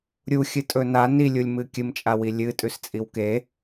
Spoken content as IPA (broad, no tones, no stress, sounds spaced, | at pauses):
ɾʲ u xʲ ɨ tʼ ɵ n a n i lʲ u lʲ m ɨ kʲ ɨ m t͡ʃʼ a w i lʲ ɨ tʼ ʉ s t͡sʼ i w k e